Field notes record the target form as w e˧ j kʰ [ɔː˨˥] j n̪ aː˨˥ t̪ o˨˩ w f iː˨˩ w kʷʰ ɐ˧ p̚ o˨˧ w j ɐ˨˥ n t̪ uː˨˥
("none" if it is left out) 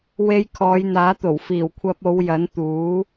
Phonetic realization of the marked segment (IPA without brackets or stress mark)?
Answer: ɔː˨˧